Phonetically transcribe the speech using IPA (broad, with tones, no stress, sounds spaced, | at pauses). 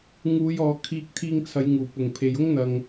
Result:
ŋ uː˨˧ j ɔː˨ kʰ iː˧ k̚ t̪ʰ iː˧ ŋ t͡sʰ ɐ˨˧ j ŋ uː˨˩ p ʊ˨˩ ŋ pʰ e˨ j ʊ˥ ŋ n̪ ɐ˨ ŋ